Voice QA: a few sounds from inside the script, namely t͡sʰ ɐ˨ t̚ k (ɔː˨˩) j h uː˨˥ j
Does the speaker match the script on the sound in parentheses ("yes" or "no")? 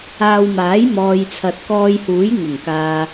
no